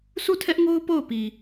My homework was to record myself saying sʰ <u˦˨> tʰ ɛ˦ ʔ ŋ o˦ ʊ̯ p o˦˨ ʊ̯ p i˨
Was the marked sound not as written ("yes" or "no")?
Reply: no